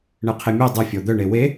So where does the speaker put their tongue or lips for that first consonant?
retroflex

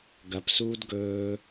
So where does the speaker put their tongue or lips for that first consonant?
velum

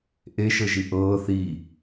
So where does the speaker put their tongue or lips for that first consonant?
throat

